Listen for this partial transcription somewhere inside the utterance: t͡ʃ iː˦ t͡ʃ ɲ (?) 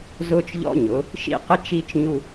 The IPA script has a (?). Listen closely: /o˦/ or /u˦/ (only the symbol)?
u˦